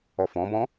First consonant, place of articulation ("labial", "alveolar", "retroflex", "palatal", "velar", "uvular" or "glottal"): labial